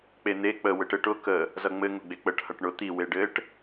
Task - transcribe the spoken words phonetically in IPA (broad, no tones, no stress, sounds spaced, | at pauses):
k͡p e n̪ e k͡p ə w ɘ ʈ ɘ ʈ ʊ k ə | z ʌ ŋ͡m ɘ ŋ ʊ ɡ͡b e k͡p ə ʈ h ʌ ʈ ɳ ʊ t̪ i w e ɖ ɘ ʈ